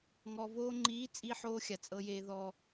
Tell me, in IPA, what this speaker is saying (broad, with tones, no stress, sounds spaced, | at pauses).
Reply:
ŋ ɔ˨ v oː˧ ŋ͡ǃ iː˨˦ t͡sʼ i˧ ħ oː˧ xʲ a˨ t͡sʼ ɤ˧ j eː˧ ð ɔ˧